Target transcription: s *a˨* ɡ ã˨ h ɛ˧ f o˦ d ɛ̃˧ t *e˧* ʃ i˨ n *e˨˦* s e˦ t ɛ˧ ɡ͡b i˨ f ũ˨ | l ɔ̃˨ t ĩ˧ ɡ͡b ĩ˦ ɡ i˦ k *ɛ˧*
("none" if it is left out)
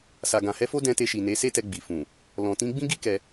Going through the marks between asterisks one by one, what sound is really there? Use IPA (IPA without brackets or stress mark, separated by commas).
a˨, e˧, e˨˦, ɛ˧